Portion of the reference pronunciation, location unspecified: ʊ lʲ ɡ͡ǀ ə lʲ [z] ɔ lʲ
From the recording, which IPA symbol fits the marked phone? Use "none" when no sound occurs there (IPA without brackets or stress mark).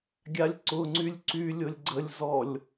z